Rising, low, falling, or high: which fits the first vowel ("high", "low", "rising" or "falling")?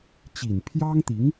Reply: low